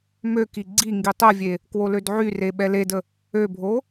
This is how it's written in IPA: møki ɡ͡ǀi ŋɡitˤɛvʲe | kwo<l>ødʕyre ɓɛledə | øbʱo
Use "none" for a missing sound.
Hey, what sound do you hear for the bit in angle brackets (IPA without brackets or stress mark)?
l